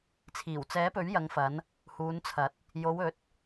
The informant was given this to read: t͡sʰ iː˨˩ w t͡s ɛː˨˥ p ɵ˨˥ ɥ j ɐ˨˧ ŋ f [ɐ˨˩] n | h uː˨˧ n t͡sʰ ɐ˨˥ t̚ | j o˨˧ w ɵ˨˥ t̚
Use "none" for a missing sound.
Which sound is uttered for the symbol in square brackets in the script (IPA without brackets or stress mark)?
ɐ˨˧